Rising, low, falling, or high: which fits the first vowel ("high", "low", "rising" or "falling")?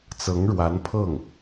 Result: rising